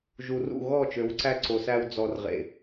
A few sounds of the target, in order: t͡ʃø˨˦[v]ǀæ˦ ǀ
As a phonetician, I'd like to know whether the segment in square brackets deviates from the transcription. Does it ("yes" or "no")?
yes